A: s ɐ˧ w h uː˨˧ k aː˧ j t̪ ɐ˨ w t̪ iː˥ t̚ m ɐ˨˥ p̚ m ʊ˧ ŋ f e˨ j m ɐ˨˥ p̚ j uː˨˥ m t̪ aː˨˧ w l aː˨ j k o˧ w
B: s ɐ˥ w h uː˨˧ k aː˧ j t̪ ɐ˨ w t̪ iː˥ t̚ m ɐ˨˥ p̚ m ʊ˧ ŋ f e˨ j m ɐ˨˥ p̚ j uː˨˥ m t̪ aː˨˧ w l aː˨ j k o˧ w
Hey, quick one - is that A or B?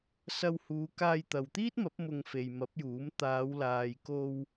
A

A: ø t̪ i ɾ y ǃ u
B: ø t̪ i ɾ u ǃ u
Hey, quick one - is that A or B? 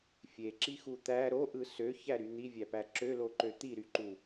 A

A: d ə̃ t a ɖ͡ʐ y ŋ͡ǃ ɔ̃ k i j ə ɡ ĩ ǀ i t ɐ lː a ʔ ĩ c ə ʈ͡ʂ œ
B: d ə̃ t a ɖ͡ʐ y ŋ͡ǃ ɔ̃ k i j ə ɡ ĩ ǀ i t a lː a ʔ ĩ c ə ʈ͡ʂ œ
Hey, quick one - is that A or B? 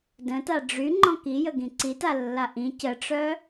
B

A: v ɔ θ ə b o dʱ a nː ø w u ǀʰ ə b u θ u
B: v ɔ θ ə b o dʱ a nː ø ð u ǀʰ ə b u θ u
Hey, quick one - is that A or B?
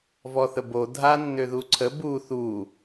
B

